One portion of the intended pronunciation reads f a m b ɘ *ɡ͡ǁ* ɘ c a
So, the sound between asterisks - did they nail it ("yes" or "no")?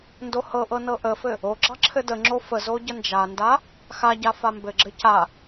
yes